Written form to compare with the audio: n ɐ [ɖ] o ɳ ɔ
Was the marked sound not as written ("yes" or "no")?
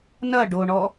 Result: no